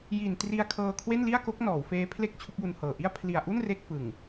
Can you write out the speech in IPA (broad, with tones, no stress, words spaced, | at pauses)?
ji˨˩n tri˧a̯ kʰɤː˧kʰwe˥˩nli˥˩a̯ko˦˥k̚ nɔː˩˦wfeː˦˥pʰle˥˩k̚ t͡ɕʰu˦˥k̚ju˧nhɤː˨˩ ʔi˥˩a̯ pʰli˨˩a̯ʔu˥˩n re˥˩k̚fɯ˨˩ŋ